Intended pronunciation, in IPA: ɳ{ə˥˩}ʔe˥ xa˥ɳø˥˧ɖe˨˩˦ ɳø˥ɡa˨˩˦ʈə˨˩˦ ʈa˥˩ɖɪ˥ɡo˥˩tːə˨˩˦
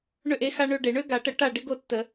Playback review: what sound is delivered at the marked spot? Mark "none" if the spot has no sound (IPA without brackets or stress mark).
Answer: ø˥˩